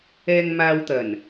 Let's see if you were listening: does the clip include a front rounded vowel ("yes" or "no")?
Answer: no